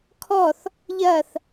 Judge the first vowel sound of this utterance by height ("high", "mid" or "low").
mid